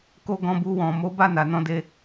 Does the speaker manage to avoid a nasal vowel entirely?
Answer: no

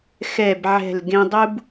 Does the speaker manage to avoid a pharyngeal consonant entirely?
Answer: no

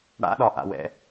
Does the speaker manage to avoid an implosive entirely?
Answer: no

